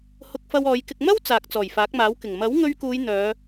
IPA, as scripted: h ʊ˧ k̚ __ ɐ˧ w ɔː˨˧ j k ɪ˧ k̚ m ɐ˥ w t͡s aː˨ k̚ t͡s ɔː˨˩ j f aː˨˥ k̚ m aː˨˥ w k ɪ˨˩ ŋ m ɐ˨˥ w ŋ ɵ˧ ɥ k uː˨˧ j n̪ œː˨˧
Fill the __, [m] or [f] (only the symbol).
f